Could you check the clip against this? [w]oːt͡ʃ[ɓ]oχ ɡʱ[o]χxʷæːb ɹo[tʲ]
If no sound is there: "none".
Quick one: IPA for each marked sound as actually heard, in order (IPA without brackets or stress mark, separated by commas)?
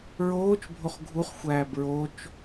ɹ, bʱ, u, t͡ʃ